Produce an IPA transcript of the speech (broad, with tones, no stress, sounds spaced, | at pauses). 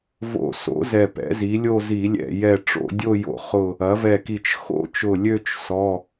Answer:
v o̰˧˩ s o̰˩˥ z ɛ˧˩ p ɛ̰˩˥ z i˩˥ lʲ o˥˧ z i˧˩˧ lʲ ɛ̰˧˩ j ɛ˧˩ ʈ͡ʂ o̰˥˧ dʲ o˥˧ j o̰˧˩ χ ʊ˧˩ | ɐ˩˥ v ɛ˧˩ k i˧˩ t͡ʃ x o̰˥˧ t͡ʃ ʊ˧˩ lʲ ø˥˧ t͡ʃ s ɔ˩˧˩